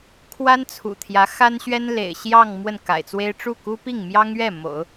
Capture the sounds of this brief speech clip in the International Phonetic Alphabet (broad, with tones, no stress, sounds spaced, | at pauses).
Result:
kʰ w a˥ n t͡sʰ ṵ˨˩ t̪ʰ j ä˧˥ x a˥ n ɕ ɥ ɛ˥ n l ḛ˨˩ ɪ̯ ɕ j ɑ˥˧ ŋ m w ə˥˩ n k a̰˨˩ ɪ̯ t͡s w e˥ ɪ̯ ʈ͡ʂ u˥˩ k u˥ p i˥˩ ŋ m j ɑ˥ ŋ ɥ ɛ˥˩ m o̰˨˩˦ ʊ̯